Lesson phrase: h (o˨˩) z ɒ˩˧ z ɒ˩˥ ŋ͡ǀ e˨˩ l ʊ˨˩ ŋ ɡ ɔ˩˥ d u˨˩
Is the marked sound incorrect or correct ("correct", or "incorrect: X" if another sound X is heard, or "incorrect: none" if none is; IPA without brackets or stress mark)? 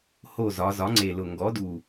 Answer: correct